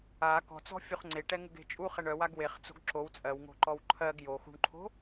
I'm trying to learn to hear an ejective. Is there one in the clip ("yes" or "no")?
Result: yes